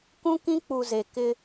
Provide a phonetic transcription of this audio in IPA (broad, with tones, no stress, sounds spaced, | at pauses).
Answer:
k ũ˦ k ĩ˦ k͡p u˨ z e˨ k ɪ˦